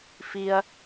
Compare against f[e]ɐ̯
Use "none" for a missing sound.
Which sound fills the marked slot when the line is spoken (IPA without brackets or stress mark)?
i